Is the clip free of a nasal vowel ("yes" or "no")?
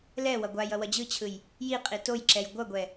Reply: yes